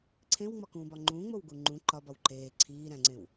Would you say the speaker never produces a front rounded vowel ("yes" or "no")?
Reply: yes